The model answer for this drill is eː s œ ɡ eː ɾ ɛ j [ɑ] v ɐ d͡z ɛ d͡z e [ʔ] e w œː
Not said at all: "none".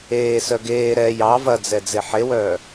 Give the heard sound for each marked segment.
ɑ, ħ

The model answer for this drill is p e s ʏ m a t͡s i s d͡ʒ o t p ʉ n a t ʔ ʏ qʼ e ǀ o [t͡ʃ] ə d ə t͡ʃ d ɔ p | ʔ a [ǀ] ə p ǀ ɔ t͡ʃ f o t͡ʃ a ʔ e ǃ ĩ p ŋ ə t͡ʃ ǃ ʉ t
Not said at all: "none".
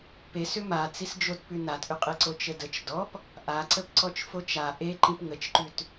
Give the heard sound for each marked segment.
t͡ʃ, ǀ

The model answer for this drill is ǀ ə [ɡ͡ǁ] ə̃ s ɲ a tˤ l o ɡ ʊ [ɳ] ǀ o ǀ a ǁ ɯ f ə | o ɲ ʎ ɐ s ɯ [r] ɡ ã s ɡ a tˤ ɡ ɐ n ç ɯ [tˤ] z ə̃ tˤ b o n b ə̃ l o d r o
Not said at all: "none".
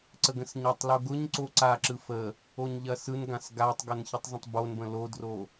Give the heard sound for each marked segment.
ɡ, ɲ, n, tˤ

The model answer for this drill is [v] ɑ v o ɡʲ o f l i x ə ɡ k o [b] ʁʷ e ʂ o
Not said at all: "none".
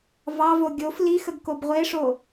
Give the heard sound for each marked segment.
v, b

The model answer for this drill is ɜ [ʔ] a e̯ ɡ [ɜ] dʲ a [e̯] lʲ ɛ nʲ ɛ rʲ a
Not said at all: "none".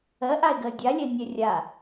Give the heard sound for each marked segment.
ʔ, ɜ, none

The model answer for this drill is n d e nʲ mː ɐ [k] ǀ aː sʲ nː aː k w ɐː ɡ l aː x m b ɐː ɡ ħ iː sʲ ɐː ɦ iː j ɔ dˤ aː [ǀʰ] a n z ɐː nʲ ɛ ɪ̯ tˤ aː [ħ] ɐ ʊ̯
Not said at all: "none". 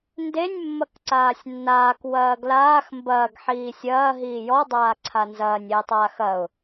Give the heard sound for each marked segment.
k, ǀʰ, x

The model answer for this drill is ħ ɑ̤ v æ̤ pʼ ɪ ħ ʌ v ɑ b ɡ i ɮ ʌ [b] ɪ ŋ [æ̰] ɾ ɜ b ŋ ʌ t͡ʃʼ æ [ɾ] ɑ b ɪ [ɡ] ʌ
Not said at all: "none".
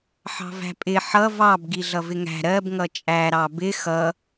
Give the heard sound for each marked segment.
v, æ̤, ɾ, x

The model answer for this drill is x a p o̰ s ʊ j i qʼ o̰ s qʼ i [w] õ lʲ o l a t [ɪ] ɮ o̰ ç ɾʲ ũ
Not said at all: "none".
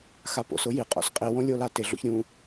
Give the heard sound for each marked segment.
w, ɪ

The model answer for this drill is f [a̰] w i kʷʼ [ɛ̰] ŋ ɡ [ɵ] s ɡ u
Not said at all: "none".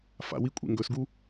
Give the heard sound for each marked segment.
a̰, ḛ, ɵ

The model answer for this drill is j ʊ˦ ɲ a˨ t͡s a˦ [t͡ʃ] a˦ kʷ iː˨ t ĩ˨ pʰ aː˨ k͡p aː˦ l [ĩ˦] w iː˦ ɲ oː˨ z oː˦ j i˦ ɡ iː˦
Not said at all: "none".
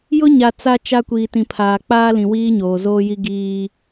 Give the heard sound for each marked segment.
t͡ʃ, ĩ˨

